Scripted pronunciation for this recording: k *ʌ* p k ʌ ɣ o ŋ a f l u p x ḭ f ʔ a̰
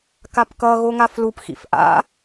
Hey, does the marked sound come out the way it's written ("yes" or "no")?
no